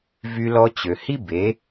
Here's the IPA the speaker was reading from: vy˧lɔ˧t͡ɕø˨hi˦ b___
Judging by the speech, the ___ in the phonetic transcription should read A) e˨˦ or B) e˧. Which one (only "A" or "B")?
A